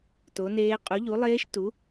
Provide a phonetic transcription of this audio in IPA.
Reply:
to˨˥neː˦˥ qʼu˨˥ʎu˨˥lˠeː˦˥ʃtu˨˥

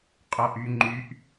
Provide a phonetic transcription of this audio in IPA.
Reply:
qʼɔʔyŋ͡ǃyʔ

